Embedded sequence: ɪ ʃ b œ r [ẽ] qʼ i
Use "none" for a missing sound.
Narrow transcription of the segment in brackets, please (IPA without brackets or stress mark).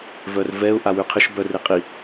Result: e